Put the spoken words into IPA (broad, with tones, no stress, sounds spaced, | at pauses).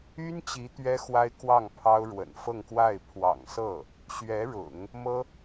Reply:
y˥ n t͡ɕ i˧˥ t̪ ɥ ɛ˥ x w a˥ ɪ̯ k w ɑ˥˩ ŋ pʰ ɑ˥ ʊ̯ ɻ w ə̰˨˩ n f ɤ˥˧ ŋ k w a˥˩ ɪ̯ pʰ w ɑ̰˨˩ ŋ s ɤ˥˩ | ɕ ɥ ɛ˧˥ ɻ ʊ̰˨˩˦ ŋ | m ɤ˥